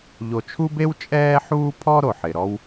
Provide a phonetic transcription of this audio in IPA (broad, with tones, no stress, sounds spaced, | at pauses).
ʎ o˧ t͡ʃʰ u˥ b e˥ w t͡ʃʼ ɛː˥ ħ uː˥ pʰ ɔ˥ ɾ o˩ ħ ɪ˩ ɾ ɔ˥ w